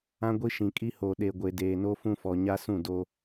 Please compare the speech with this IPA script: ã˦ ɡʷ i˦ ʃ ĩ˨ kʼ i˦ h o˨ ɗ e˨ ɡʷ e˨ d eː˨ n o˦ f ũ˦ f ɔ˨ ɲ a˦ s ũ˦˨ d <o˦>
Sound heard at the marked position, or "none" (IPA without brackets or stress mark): o˦